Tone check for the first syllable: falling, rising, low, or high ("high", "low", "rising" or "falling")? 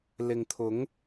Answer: low